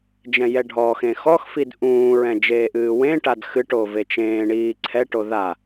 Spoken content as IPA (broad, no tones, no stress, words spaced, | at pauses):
d͡ʒɛ̃jɛɖʱɔxẽ xɔxfid ʔũːɹɛ̃ d͡ʒeːʔɨːwẽʈad xɨʈo vet͡ʃẽːɳiː ǀʰɛʈo ða